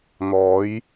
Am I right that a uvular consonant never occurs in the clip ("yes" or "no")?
yes